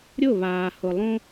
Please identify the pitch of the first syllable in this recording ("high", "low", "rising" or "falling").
falling